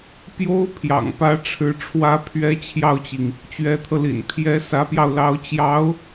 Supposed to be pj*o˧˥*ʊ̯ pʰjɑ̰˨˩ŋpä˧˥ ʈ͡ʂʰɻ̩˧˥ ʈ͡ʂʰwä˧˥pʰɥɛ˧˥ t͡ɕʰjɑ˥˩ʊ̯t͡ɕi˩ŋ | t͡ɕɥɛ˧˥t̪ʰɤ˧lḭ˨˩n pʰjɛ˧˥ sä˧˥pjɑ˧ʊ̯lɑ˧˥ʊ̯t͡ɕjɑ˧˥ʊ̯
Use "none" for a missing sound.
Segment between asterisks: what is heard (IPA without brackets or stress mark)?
o˥